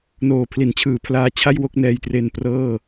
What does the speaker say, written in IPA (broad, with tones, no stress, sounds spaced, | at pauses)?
n oː˨˩ pʰ l i˩˦ n t͡ɕʰ ɯː˨˩ pʰ l aː˧ t͡ɕʰ a˥˩ j w o˥˩ k̚ n ɛː˧ j t r e˧ n p r ɤː˥˩